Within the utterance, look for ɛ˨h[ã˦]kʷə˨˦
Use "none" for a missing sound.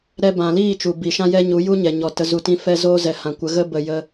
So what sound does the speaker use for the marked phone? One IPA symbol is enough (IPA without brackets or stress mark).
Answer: ã˨